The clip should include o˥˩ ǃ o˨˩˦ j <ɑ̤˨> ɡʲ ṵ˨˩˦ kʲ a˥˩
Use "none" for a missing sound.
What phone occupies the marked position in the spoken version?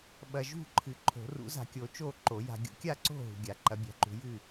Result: a̤˨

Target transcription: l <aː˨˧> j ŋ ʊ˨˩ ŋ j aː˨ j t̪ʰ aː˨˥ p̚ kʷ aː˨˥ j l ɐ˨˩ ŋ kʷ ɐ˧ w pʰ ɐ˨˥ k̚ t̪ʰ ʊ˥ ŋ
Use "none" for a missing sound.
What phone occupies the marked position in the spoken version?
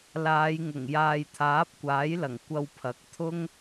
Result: aː˨˧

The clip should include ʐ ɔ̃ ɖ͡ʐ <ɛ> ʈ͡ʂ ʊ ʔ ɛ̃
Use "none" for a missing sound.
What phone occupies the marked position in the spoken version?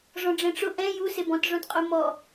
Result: ɛ̃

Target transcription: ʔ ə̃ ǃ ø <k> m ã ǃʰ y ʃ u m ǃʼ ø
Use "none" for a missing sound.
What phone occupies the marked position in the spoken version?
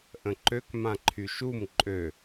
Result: k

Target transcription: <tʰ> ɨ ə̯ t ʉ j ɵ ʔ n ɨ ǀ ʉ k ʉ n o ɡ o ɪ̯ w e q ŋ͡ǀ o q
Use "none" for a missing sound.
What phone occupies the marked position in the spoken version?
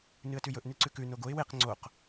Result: n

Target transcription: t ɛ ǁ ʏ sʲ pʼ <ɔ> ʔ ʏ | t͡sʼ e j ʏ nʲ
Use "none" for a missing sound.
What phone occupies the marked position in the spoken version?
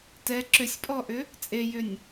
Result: ɔ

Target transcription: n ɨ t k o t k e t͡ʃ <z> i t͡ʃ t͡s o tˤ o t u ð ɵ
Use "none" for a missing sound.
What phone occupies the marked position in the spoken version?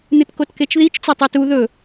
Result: ð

